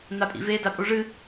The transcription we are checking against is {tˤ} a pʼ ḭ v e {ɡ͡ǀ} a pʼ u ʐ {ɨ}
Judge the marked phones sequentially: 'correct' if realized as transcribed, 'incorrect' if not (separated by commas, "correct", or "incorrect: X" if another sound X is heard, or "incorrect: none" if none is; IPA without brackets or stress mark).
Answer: incorrect: n̪, incorrect: d, correct